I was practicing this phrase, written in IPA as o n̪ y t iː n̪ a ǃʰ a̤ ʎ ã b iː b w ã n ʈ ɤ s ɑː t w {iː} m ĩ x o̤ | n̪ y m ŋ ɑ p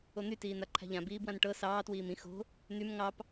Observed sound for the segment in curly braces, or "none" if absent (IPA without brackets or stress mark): iː